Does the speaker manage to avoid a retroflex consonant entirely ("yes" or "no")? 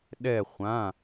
yes